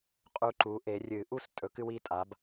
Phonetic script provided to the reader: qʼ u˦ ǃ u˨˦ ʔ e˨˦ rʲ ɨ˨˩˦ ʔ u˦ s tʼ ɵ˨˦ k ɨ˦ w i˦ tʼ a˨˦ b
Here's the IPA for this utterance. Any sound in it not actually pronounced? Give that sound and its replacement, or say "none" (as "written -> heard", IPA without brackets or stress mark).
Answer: none